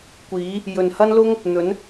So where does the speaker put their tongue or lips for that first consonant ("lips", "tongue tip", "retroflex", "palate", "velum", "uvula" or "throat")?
velum